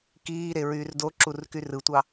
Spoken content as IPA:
kiːɾe ɹyːrdoǁur kyrɯtʷɑ

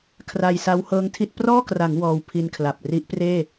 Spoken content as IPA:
kʰra˧jsa˦˥w hɤː˦˥ŋtʰi˦˥t̚ prɔː˥˩kra˩˦ŋ wɔː˧wpʰi˧nkʰla˨˩p̚ ri˦˥ʔpreː˥˩

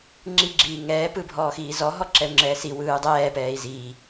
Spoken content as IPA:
ŋ͡ǁi ɡ͡ǁiːŋɛː pɯbʱɔːxiːzɔ ɦɔǁɛu̯ŋ͡ǁɛːsi wɯːdˤɛː pɛːi̯ziː

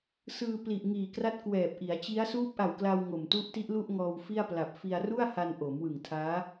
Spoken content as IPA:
sɯː˧ pli˨˩ʔŋiː˨˩kra˦˥t̚ kwɛː˨˩p̚ʔi˩˦a̯t͡ɕi˦˥a̯ suː˦˥p̚ʔa˨˩wkla˧w ŋo˨˩m tu˦˥ʔti˦˥ʔ lu˥˩ʔŋɔː˧wfi˥˩a̯pla˨˩p̚ fi˧a̯ru˥˩a̯ha˧n ʔo˩˦mwɯ˨˩ŋtʰaː˦˥

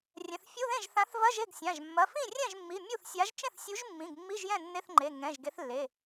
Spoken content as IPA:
rʲɛ̃˩˧˩θfʲu˧˥˧ðẽ˥˩ʒ θã˨˥θvɐ˧˥˧ʒe˥˩ɡ sʲã˩˧˩ʒ mːɐ˩˧˩fĩ˥˩rʲɛ̃˥˩ʒmːi˩˧˩ mʲu˥˩θsʲa˨˥ʒ t͡ʃẽ˥˩θsʲu˨˥ʒmːĩ˩˧˩ɡ mːi˧˥˧ʒjɛ̃˥˩ nːe˧˥˧θŋ͡ǃe˩˧˩ ŋɛ̃˩˧˩ʒ ɡe˨˥θlːe˩˧˩

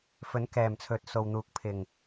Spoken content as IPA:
fɵ˨˥n kɛː˨˩mt͡sʰɵ˨t̚ so˨wn̪uː˨˥k̚ pʰɪ˨˩ŋ

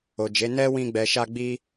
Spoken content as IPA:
o˨d͡ʒe˨˦ nɛ˦wĩ˧ɡ͡bɛ˨ʃa˧ ɡ͡bi˧

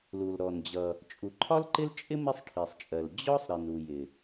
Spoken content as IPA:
lu˩l ɾɔ˩nd͡ʑʌ˩ | t͡ʃʼu˩ǃʰɒ˥lǃɪ˥lt͡ʃʼɪ˥ mɪ˥sˤʈʰi˩sˤt͡ʃʼɜ˩l d͡ʑɔ˥sˤ ɾi˩nu˩ jɪ˩

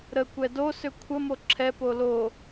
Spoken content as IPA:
ɾəkʷɛ dosʏ kʷʰəmo ǁʰɛpo lo

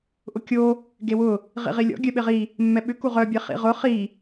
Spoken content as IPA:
ʔʊkʲo | ɡewʊ | ʁḭʁilʲɔ̰ ɡʲœɓɪʁi | mːɛɓʏ kuʁœ bʲeχḭʁʊ χi

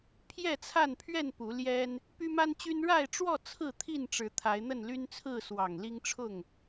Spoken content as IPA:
pʰjɛ˥˨t͡sʰa˥˨npʰɥɛ˥˨n pu˨˦ljɛ˦n | py˦ma˦nt͡ɕy˦n ɻa˥˨ɪ̯ʈ͡ʂwɔ˥˨ t͡sʰɹ̩˥˨t̪ʰi˥˨nʈ͡ʂɻ̩˨˦ t̪ʰa˨˦ɪ̯n̪ə˥˨nly˦nt͡sʰɹ̩˥˨ swɑ˨˩ŋ li˦ŋʈ͡ʂʰʊ˥˨ŋ

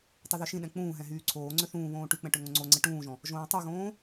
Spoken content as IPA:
tˤuðøʃĩɗɛ̃ k͡pũːɦɛ̃ ɦyːǀʰoːŋ͡ǀø θũːβõː ʈyk͡pɛ̃ ʈøŋõŋ͡ǀoŋ͡ǀɛ ʈũːʒɔ̃ | ʒõːtˤyɣõː

